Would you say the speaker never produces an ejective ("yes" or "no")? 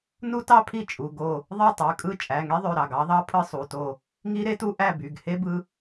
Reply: no